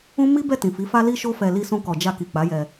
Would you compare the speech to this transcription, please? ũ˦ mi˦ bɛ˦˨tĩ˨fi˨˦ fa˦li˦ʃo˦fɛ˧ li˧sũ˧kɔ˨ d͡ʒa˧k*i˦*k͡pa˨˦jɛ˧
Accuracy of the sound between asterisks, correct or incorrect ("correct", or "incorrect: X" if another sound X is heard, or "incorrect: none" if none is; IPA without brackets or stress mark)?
incorrect: i˨